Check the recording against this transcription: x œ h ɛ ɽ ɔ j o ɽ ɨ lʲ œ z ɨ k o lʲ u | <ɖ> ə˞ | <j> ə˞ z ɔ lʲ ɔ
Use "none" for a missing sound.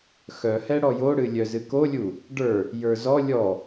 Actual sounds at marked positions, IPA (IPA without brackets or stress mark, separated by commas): ɖ, j